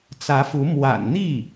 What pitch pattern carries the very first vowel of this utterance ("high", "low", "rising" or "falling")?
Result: rising